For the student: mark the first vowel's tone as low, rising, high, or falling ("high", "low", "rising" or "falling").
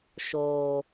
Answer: low